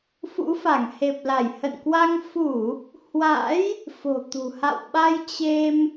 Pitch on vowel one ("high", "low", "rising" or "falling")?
rising